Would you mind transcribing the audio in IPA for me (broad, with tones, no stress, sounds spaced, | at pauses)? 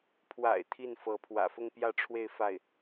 pʰ w a̰˨˩ ɪ̯ t̪ʰ i˥˩ n f ɤ˧˥ pʰ w ä̰˨˩ f ʊ˥˧ ŋ p j ä˥˧ ʈ͡ʂʰ w e˥˧ ɪ̯ f a˥˩ ɪ̯